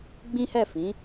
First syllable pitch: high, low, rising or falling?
high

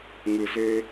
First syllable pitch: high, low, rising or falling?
low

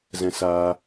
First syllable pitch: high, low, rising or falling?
high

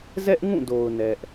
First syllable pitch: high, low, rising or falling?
high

